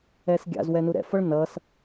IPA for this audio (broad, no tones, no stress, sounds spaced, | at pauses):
ɛ s ɡʲ a̰ z w ɛ n u ɾ ɛ̰ f ʌ ɭ n ʌ s